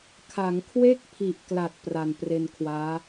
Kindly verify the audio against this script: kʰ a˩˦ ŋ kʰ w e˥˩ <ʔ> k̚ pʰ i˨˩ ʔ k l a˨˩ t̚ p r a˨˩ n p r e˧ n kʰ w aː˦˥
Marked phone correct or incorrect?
incorrect